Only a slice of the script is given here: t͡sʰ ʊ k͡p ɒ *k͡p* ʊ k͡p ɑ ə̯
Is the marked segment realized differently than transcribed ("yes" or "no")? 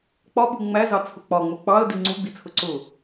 yes